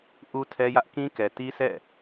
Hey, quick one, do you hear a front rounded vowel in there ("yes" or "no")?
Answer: no